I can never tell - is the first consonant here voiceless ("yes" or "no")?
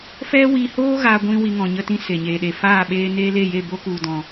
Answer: yes